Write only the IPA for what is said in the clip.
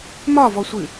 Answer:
m ɒ v ɔ sʷ ɨ

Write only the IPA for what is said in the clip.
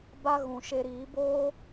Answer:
b a˧ ɣ ũ˨ ʃ e˧ ɾ iː˨˦ b oː˦

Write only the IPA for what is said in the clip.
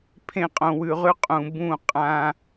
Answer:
pʰ ẽ˧ qʼ õ˨ w ʉ˨ ʁ ʉ˧ qʼ ũ˨ b ũ˦˨ qʼ ã˧

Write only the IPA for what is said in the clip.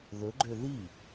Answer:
ð ɵ ɡ͡ǃ ø ð i

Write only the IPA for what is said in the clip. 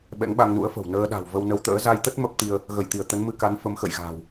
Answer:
ɓ ɛ̰˧˥ ŋ ɓ a˧ ŋ n ṵ˧˥ ə̯ f ə̤˨˩ w n əː˧ ɗ a̤˨˩ w v ə˧ w n ə˨˦ w t̪ ə̰ː˧˥ z a˧ j t̪ ə˦˥ t̚ m ə˦˥ p̚ t̪ i˧ ə̯ | ɣ ə˧˩ j t̪ i˧˩ ə̯ t̪ ə˨˦ n m ɨ˧ k a˨˦ n f ə˨˦ m x ə̰˧˨ j ɣ a̤ː˨˩ w

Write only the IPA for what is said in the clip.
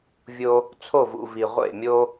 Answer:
vʲ o˧ | t͡sʰ o˦˨ v ṵ˨ v i˨ ʁʷ ḛ˦˨ mʲ o˦

